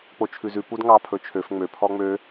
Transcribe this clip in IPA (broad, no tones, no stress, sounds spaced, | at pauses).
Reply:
k͡p o t͡ʃʰ ʉ z ʉ p u d ŋ ɑ pʰ ɵ t͡ʃʰ ø f ŋ͡m ø pʰ ɔ ŋ͡m ø